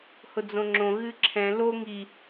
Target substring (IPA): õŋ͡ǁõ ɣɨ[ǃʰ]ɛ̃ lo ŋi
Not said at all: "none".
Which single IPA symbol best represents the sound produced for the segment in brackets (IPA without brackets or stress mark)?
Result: ǁʰ